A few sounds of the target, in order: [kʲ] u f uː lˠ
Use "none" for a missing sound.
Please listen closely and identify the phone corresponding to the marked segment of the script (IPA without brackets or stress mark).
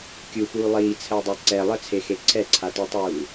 kʲ